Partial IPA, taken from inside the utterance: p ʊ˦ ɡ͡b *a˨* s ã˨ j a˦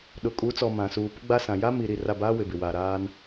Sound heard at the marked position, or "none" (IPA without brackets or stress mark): a˦